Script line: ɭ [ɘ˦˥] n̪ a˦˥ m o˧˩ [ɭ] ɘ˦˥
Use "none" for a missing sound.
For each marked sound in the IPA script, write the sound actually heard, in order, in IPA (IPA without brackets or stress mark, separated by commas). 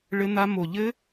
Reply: ɘ˦˥, ʎ